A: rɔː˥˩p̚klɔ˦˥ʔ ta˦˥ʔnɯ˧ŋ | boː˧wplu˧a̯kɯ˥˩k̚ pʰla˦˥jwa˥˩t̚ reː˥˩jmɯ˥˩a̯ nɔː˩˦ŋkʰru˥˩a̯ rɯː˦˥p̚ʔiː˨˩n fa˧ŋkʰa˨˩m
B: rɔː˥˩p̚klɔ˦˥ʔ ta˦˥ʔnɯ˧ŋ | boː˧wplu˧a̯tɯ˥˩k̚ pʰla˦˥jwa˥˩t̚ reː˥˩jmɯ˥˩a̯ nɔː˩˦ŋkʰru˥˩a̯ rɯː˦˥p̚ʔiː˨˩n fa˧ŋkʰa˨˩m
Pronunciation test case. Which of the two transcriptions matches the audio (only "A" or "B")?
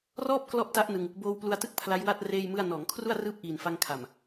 B